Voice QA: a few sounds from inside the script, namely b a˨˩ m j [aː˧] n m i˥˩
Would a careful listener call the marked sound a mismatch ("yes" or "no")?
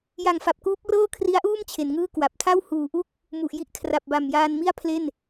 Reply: no